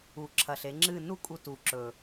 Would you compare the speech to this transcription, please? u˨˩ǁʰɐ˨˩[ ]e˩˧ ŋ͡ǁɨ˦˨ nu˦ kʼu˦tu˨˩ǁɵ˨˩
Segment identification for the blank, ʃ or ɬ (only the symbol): ɬ